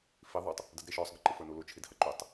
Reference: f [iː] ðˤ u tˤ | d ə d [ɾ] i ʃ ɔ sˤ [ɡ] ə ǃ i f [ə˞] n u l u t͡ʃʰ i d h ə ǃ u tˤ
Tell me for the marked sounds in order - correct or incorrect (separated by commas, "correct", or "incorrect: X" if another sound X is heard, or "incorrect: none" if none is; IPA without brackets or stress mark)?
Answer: incorrect: i, correct, correct, correct